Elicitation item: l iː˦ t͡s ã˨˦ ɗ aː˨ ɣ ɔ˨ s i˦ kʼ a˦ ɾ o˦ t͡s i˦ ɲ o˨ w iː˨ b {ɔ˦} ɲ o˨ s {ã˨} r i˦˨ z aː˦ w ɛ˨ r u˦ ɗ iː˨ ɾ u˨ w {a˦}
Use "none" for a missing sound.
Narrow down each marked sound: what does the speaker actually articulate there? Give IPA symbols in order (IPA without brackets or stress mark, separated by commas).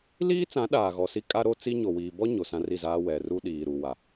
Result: ɔ˦, ã˦, a˨